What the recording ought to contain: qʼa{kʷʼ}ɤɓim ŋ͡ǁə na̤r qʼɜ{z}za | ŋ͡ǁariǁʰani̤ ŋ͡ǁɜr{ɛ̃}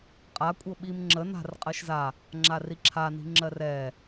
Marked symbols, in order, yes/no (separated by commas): yes, no, no